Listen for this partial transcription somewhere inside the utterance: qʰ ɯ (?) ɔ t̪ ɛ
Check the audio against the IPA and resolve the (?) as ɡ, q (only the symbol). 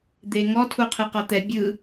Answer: q